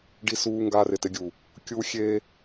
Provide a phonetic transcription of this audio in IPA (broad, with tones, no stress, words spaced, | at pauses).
ɖi˦suː˦ ŋɡaː˦rɪ˨tɪ˦ɡʲu˨ | kʲu˦xʲe˦